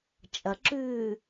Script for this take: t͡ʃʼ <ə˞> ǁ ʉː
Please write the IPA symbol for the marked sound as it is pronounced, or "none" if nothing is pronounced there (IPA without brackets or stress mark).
ɐ